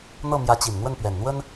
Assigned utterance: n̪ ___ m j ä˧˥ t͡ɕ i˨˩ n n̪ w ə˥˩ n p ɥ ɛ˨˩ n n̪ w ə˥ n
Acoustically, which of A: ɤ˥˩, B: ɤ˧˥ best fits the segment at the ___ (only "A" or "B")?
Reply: A